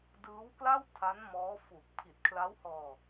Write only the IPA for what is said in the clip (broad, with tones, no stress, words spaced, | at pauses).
dɯː˦˥wkla˥˩wtʰa˦˥n mɔː˦˥fu˨˩k̚ pʰi˨˩t̚kʰla˦˥whɔː˧